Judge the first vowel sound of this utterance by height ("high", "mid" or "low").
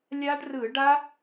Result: low